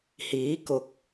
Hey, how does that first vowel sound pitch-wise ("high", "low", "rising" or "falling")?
rising